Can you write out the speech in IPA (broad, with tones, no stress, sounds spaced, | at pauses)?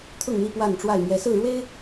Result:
t̪ʰ ʊ˥˨ ŋ n̪ i˥˨ p w a˥˨ n ʈ͡ʂ w a˥˨ ɪ̯ m j ɛ˨˦ s ɹ̩˥˨ ɻ w e˦ ɪ̯